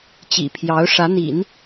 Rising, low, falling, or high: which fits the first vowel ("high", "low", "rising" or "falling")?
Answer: low